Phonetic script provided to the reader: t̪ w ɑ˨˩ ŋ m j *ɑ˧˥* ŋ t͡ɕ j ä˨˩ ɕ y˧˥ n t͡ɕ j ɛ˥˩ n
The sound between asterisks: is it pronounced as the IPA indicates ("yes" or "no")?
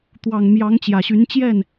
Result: yes